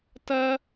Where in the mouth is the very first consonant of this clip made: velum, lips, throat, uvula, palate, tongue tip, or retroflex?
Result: tongue tip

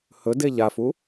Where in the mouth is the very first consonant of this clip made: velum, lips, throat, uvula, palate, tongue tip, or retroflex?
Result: throat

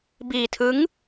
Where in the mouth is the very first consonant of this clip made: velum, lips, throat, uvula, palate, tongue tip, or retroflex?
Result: lips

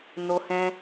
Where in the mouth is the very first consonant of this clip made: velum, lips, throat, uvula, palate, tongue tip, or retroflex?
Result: tongue tip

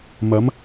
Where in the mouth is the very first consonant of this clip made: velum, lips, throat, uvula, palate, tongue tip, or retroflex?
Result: lips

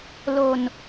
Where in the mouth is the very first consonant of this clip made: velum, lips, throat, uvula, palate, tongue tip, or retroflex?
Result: tongue tip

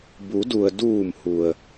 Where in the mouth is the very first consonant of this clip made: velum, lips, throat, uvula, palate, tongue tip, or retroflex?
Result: lips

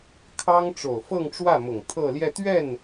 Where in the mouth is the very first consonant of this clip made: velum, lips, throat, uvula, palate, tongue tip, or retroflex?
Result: velum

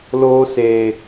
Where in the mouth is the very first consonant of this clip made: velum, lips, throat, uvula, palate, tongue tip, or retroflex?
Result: tongue tip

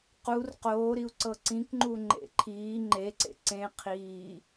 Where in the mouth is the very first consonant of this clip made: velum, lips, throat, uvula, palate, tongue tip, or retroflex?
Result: uvula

